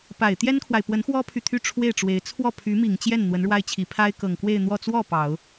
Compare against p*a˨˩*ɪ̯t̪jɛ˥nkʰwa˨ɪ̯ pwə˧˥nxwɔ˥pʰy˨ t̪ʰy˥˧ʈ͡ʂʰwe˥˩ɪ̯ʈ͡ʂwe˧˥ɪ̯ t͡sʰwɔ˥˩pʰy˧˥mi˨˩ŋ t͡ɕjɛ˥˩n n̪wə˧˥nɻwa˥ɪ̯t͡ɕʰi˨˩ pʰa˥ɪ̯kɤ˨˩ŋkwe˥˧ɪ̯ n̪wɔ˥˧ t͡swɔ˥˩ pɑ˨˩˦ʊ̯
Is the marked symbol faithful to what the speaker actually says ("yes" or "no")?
yes